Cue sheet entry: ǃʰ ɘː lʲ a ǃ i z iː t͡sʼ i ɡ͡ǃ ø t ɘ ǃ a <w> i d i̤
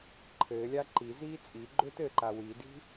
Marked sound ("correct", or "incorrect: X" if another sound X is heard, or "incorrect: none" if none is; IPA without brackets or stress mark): correct